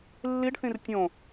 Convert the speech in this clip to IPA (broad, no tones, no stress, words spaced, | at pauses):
lːiɖθĩr tʲõ